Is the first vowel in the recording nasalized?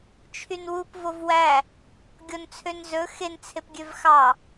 no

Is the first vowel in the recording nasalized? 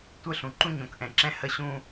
no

